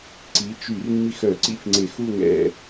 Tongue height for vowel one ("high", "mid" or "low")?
high